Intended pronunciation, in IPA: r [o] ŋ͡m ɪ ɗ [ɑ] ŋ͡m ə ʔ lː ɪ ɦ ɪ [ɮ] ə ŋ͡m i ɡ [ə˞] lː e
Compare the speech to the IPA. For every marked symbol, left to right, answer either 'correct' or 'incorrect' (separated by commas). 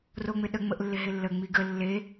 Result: correct, incorrect, incorrect, incorrect